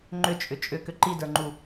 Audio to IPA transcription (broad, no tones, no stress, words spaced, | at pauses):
ŋ͡ǃʏt͡ʃʼʏ t͡ʃʼʏkʏ ǃidə˞ŋ͡ǃu